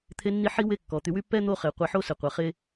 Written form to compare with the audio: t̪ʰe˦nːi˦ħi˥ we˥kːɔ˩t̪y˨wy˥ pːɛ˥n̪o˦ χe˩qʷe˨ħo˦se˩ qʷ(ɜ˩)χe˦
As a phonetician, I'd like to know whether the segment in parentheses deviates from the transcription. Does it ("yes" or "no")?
yes